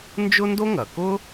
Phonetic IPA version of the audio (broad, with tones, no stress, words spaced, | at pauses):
nd͡ʒʊ˥ndo˥ŋɐ˩kʊ˥